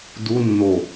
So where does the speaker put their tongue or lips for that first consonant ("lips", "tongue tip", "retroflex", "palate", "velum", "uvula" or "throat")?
tongue tip